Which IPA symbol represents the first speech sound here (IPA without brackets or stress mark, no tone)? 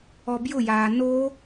ɔ